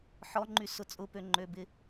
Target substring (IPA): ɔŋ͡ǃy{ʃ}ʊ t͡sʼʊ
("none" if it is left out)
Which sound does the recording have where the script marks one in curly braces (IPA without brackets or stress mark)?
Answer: s